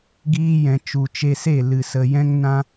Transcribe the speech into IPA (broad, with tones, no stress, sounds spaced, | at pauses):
ɡ iː˧ j ɛ̃˨ t͡ʃ u˨ t͡ʃ e˧ s e˦˨ l ɨ˨ s ə˨ j ɛ̃˦ ŋ n ã˦